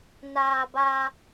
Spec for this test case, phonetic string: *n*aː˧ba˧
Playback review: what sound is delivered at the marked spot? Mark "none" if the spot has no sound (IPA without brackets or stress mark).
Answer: n